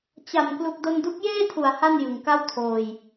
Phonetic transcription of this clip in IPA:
t͡ɕ a˨˩ m k l u˨˩ k̚ d o˧ n d u˦˥ k̚ j eː˥˩ tʰ u˩˦ a̯ h a˥˩ n j ɯ˨˩ ŋ k a˥˩ w tʰ oː˧ j

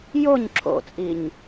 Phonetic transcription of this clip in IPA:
j o ɲ ǁʰ o̰ t͡sʼ i ɲ

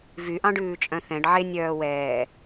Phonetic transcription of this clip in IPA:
v y ʔ ɑ̃ ɖ ʉː t͡ʃʼ œ̃ θ ɛ̃ ɖ ʕ e nʲ œː w ɛː

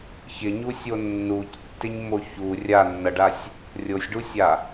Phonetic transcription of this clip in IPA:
ç ɪ ɲ u sʲ o nː u c tː ɪ ɲ m o ç u rʲ a nː ʌ ɖ a sʲ | rʲ o sʲ ɖ u sʲ a

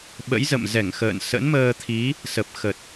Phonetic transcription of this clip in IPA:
ɓ ə̰˧˥ j z ə̰˧˨ m z ɛ˧˩ ŋ x ə̰ː˧˨ n s ə̰˧˥ n m əː˧ t̪ʰ i˨˦ | s ə˨˩ p̚ x ə˨˩ t̚

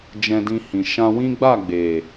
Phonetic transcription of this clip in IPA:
d͡ʒ ɛ̃˧ d ĩ˧ h ĩ˨ ʃ ã˧ w ĩ˦ ɡ͡b a˦˨ ɡ͡b e˨

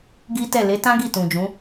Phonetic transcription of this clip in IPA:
ɡ i˦ t ɛ˦˨ l e˨˦ t ã˦ ɡ i˦˨ t ũ˨ d͡ʒ ũ˨˦

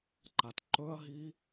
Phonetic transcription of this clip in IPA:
ǃ a t ǃ ɵ ɐ̯ ɦ i

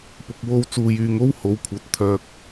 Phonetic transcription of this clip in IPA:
p ʊ˨ k̚ w o˧ w t͡s uː˨ j yː˨ ŋ o˥ w h o˨˧ w kʷʰ ɐ˨˥ t̚ t̪ʰ œː˨ k̚

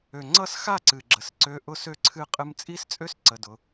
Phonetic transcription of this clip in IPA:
ø˨ ŋ͡ǀ ʌ˦˨ s x a˦˨ ǀ ɨ˨ ɡ͡ǁ ə˨ s ǀ ø˧ ʔ ʊ˦ s ø˦ ǀʰ ɨ˦ qʼ ɨ˧ m t͡sʼ i˦ s t͡sʼ ø˦ s ǀ ə˧ d ʊ˧

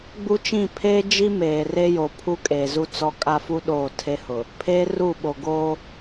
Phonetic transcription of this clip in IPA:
ɡ͡b u˦ t͡ʃ ĩ˦˨ pʰ eː˦ d͡ʒ i˦ m eː˨ r e˦ j o˨ pʰ u˦ kʼ eː˨ z u˦ t͡s ɔ˦ kʼ a˦ f u˦ ɗ oː˦˨ tʰ e˦ h ʊ˨ | pʰ eː˦ r u˦˨ ɓ o˨ ɡ oː˦

